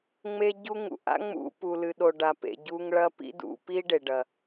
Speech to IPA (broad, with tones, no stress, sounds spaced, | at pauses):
ŋ͡m e˦ ɟ u˦ ŋ ṵ˨ ʔ a̰˦ ŋ͡m ṵ˧ p u˨ l ɨ˨ ɗ o˨ ɖ a˨ p ḛ˨ ɟ u˧ ŋ ɭ ɐ˦ p ḭ˦ d ṵ˧ p i˦ ɖ e˨ ɖ ɐ˨